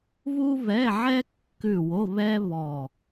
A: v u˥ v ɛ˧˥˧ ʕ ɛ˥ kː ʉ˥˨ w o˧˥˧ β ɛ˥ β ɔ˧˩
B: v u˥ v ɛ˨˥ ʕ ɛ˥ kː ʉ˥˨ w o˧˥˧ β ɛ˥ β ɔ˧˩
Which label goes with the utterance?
A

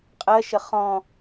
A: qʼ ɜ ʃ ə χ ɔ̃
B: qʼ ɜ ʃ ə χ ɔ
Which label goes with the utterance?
A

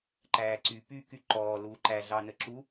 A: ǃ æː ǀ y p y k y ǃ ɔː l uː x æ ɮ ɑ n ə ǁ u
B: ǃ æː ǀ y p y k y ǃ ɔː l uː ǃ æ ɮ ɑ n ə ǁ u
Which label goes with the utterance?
B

